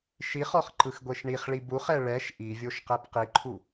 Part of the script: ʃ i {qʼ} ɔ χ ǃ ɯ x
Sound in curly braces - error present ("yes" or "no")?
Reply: yes